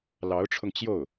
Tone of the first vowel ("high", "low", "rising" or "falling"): rising